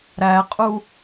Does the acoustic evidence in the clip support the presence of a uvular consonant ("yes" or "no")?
yes